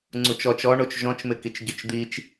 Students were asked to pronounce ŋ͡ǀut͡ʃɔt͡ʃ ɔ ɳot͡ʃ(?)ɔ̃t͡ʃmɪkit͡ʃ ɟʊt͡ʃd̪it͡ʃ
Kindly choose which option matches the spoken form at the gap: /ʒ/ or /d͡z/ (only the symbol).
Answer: ʒ